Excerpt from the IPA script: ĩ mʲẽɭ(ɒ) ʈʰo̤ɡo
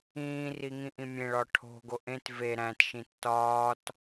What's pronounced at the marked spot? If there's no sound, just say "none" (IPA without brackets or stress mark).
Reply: ɒ